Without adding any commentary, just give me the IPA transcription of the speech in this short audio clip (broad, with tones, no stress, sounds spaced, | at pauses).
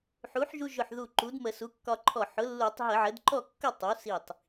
ħ u˩˥ ħ ʒ u˧ ʒ ʊ˧˩ ħ ð u˧˩ ǃ u˩˥ d m ə˧˩˧ s u˩˥ kː ɒ˧ ǃʰ ɔ˧˩ ħ ʊ˩˥ lː u˧˩˧ tˤ ɦ ə˧˩˧ ʕ ə˩˥ d ǃ ɔ˥˨ kː ʊ˥˨ tˤ u˩˥ s i˧˩ tˤ